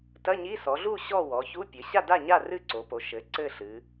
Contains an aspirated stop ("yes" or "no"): no